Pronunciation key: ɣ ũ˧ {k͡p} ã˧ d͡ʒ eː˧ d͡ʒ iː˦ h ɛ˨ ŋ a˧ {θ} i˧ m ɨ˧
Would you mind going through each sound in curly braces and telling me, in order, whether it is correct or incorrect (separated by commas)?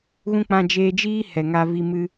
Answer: correct, incorrect